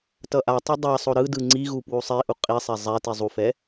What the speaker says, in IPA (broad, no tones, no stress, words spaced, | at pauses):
tʌʔatˤʌ dˤasˤo ɾɯdɯ ŋ͡ǀiɣu pwusˤiʔu qʼisˤɛ zˤɛ tizˤufɛ